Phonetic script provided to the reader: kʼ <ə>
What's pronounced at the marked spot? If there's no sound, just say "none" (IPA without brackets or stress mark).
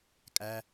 æ